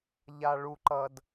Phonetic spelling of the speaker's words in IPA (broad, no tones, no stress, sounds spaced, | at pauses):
ʎ a ɭ u ǃ ʌ d